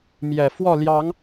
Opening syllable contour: low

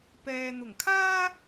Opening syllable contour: low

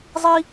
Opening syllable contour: high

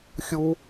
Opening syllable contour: high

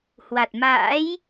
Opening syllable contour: low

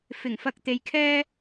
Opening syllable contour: low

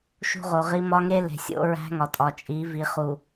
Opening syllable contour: high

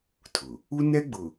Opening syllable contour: low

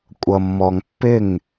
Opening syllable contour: low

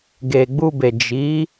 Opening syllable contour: low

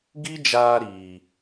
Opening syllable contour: high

